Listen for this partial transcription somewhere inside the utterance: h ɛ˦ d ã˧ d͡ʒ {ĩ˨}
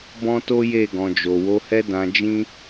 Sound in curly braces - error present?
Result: yes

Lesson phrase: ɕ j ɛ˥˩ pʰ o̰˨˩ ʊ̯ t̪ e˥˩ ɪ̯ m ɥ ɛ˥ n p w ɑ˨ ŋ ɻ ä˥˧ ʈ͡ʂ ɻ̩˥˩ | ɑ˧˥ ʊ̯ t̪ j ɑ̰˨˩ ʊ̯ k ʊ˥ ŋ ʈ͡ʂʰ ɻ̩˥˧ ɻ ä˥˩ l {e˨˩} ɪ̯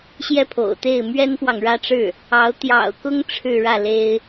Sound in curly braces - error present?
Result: yes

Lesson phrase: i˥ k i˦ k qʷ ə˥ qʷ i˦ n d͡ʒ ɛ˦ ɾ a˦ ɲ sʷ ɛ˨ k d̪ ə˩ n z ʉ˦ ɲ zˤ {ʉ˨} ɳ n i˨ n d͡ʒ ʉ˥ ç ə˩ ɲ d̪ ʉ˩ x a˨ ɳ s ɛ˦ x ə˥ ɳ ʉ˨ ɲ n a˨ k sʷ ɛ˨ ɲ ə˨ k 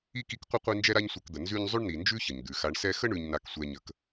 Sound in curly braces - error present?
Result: yes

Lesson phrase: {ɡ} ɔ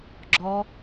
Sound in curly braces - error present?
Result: yes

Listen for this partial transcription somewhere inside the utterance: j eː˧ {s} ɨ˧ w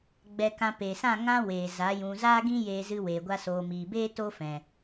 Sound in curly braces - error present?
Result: yes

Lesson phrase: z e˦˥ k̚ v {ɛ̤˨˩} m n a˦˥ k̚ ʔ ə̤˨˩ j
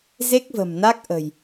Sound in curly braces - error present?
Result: yes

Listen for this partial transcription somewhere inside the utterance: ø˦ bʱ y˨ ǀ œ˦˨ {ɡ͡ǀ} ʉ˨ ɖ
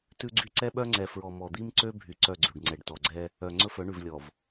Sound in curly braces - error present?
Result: no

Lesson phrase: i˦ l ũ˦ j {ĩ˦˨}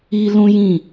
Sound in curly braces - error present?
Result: no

